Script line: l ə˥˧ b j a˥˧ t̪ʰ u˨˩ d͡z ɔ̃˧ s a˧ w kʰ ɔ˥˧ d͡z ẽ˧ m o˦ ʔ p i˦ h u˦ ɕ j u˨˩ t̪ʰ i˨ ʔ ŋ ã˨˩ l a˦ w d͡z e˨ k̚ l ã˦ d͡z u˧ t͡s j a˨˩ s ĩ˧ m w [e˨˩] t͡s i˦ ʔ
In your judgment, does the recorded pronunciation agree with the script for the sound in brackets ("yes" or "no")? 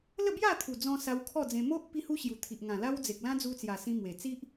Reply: yes